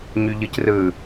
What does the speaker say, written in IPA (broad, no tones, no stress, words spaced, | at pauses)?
ɲyʎɯcrɯ